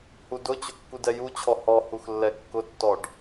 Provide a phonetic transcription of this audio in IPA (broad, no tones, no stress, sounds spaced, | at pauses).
h u d ʊ t͡ɕ ʊ kː u d ɛ j u t͡ɕʰ ɔ h ɔ h u x lː ɛ kː ʊ tː ɔ ɖ